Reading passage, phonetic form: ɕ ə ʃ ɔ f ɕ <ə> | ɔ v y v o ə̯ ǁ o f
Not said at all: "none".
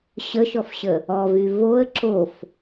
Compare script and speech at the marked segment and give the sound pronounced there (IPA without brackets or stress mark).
ə